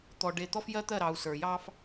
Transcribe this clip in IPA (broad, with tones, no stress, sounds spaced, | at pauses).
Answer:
t̪ ɔ˨ ɖ e˨ t̪ ɔ˦ f j ɜ˦ t̪ ɜ˦˨ ɾ ɑ˨ u̯ s ə˞˨ j ɑ˦ f